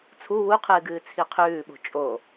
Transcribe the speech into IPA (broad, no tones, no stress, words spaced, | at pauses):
t͡sʰu wuqʰɨːɡɨː t͡sʰiqʰʉːɓo̤ t͡ʃʼo